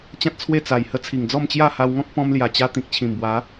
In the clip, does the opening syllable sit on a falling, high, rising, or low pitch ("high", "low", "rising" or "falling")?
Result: high